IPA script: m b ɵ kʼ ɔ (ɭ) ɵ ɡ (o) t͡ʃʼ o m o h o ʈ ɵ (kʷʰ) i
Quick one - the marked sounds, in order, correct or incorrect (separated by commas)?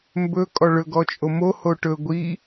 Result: correct, incorrect, incorrect